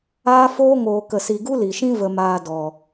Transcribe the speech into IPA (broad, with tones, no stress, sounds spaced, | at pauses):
aː˦ f oː˦ ŋ oː˨ k ə˨ s i˨ ɡ u˦ l i˨ ʃ ĩ˦ v ə˧ m aː˧ d ɔ˨